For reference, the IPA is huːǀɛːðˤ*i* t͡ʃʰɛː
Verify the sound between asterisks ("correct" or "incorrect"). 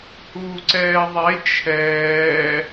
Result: incorrect